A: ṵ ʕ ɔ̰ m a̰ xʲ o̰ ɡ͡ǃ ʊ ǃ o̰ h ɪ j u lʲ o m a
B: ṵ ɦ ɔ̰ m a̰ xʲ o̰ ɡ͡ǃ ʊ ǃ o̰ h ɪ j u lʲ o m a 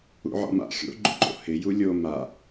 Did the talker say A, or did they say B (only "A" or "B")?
A